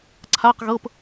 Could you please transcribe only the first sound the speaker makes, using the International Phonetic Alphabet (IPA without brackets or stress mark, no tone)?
ǀʰ